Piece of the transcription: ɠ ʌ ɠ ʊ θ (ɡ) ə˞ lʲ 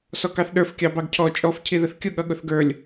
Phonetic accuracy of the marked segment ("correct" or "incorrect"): correct